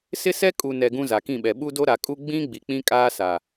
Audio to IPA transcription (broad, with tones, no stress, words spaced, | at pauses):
sɪ˦sɛ˦ kʼu˨nɛ˨ ɡũ˦za˨kĩ˦˨ɓɛ˨ ɓu˦do˦ɾa˨ kʼu˦ ɡ͡bĩ˦ ɡ͡bi˨k͡pĩ˦kʼaː˦ sa˨